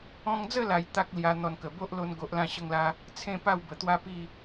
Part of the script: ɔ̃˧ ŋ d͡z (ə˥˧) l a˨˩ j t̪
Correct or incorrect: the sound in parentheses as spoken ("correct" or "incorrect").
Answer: correct